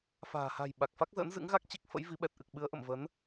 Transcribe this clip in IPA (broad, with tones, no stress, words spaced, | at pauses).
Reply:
fa̤ː˨˩ha̤˨˩j ɓa˨˩k̚fa˦˥k̚zə̰ː˧˥n zɨ̰˧˥ŋɣa˦˥k̚ t͡ɕi˦˥k̚fə̰˧˥jvi˨˦ ɓɛ˨˩t̚ʔɨ˨˩k̚ɓɨ˨˦ə̯ʔə̰˧˨m və˨˦n